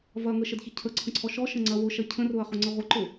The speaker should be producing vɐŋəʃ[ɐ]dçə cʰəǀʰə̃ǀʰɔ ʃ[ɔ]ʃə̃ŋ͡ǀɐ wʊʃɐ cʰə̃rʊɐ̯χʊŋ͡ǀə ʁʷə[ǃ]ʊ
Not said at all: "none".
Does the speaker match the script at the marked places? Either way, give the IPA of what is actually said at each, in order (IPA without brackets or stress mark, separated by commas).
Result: ə, ɔ, ǃ